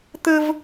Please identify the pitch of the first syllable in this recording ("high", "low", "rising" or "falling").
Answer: high